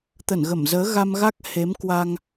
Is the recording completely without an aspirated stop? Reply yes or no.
yes